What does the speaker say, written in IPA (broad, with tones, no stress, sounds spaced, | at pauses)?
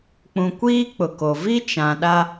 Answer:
k͡p ũ˨ kʷ iː˦ k͡p ʊ˨ k o˨ v i˦ t͡ʃ ã˨ ɗ a˦